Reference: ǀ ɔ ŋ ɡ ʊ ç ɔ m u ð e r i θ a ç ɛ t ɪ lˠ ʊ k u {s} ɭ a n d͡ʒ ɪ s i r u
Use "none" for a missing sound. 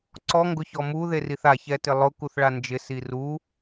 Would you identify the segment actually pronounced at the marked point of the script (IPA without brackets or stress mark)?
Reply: θ